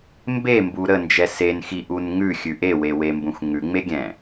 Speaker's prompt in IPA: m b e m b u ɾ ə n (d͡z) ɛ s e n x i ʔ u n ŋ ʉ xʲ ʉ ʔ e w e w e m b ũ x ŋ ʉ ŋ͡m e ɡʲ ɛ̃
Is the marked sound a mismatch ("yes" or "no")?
yes